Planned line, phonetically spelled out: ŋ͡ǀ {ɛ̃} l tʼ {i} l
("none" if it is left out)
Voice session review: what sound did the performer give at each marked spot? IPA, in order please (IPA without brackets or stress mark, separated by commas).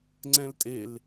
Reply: ɛ̃, e